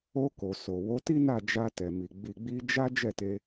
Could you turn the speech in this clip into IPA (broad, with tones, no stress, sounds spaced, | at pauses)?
o˧ k o˨ s o˨ w o˨˦ t i˦ n a˦˨ d͡ʒ a˧ t ɛ˨ m i˨ ɡ͡b i˨ ɡ͡b i˧ d͡ʒ a˦ d͡ʒ ɛ˦˨ t e˧